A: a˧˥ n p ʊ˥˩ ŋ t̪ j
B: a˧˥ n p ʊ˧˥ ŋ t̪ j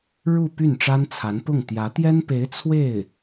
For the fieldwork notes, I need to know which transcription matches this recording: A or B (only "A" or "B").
A